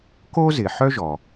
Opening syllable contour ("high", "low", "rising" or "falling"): high